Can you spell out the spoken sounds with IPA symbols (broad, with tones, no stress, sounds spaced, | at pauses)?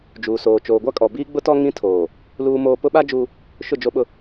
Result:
d͡ʒ uː˨ s oː˨ t͡ʃ oː˨ ɡʷ a˦ kʼ ɔ˨ b iː˦ ɡ͡b ʊ˦ t ɔ˦ ŋ ĩ˦ tʰ oː˨ | l uː˦ m oː˦ p ʊ˦ ɓ a˦ d͡ʒ uː˦ | ʃ ʊ˦˨ d͡ʒ o˦ ɓ ʊ˦